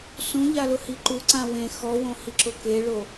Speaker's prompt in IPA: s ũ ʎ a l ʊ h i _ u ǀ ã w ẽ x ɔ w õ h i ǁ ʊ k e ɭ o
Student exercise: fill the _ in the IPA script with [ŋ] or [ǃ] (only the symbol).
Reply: ǃ